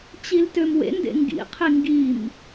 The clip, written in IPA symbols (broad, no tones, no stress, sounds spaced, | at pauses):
t͡ɕ i l t ø m w ḛ n d ḛ ŋ ɡ ḭ qʰ i ŋ ɡ i m